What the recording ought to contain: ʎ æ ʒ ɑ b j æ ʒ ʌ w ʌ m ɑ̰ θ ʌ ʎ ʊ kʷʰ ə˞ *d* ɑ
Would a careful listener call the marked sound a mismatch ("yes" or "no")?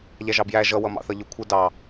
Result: no